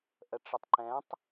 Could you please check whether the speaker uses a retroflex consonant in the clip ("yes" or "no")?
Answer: yes